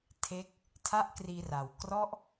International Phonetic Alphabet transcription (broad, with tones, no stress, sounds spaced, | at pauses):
tʰ e˦˥ k̚ | tʰ a˦˥ ʔ k r iː˧ r a˨˩ w k r ɔ˦˥ ʔ